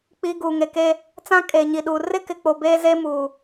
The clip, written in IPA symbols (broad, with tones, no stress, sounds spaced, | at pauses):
k͡p i˨ ɡ uː˨ ŋ e˨ k e˦ | t͡s ã˦ kʼ eː˨ ɲ i˨ ɗ uː˨ r ɪ˦ k ɪ˨ k͡p o˨ b eː˦ z e˦ m uː˨